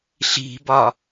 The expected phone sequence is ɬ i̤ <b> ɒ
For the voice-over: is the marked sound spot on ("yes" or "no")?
yes